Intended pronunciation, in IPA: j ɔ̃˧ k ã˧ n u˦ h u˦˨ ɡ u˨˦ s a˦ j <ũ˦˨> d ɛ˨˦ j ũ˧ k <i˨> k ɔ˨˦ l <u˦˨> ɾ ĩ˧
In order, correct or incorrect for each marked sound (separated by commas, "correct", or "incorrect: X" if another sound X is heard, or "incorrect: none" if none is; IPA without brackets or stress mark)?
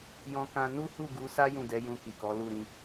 correct, correct, correct